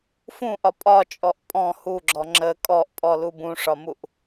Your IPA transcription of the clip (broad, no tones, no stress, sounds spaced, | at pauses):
f ũ ʔ ɒ pʼ ɒ t͡ʃʼ ɔ ʔ pʼ ɔ̃ h u ɡ͡ǁ ɔ ŋ͡ǁ ə kʼ ɔ ʔ pʼ ɔ l u b ũ ʂ ɒ m u ʔ